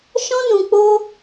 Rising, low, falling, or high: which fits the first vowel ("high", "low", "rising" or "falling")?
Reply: high